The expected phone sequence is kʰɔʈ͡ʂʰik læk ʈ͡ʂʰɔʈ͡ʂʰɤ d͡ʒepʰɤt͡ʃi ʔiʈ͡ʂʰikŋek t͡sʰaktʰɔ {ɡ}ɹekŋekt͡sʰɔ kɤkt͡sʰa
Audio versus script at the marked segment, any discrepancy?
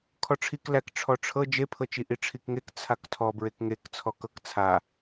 yes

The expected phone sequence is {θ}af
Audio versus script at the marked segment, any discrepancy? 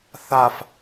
no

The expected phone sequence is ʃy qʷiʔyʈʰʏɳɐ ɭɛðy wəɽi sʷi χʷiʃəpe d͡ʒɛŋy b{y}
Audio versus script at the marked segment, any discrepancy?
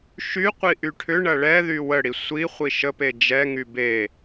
yes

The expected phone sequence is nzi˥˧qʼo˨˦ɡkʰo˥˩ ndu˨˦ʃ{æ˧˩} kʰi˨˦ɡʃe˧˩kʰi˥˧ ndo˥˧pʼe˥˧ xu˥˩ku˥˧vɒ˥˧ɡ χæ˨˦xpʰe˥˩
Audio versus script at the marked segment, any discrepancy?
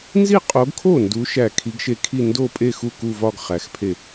no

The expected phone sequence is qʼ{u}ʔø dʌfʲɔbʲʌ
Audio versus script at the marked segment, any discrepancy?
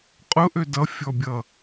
yes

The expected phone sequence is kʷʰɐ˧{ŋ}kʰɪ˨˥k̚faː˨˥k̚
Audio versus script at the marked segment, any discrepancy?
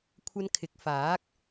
yes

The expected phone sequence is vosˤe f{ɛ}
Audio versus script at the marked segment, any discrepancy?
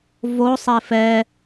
no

